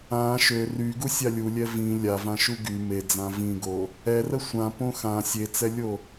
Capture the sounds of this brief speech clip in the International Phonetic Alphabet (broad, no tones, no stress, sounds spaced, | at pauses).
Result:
ã ʃ ø r y ɡ u sʲ a lʲ u lʲ ɛ v ĩ lʲ a v ã ʃ u ɡ y m e d͡z ã v ĩ ɡ o | ɛ r ə sʷ ã p õ x ã sʲ e t͡s ɛ lʲ o